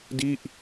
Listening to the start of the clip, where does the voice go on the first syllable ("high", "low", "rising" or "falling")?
falling